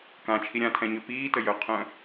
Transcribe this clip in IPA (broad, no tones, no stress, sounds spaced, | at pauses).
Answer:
k ã t͡ʃʰ i ɾʲ ã tʰ ɛ̃ ɲ ø p iː t ə j œ qʰ œ̃